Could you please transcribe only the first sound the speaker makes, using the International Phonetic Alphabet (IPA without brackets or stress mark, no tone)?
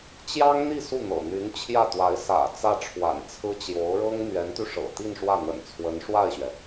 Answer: t͡ɕ